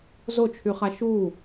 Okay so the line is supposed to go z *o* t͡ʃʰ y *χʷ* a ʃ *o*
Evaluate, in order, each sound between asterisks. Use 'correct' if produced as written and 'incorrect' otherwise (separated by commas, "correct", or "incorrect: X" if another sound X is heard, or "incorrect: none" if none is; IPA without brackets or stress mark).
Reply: correct, incorrect: χ, incorrect: u